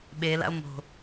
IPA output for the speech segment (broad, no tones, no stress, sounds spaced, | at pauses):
ɓ e l a̰ o̯ m o̤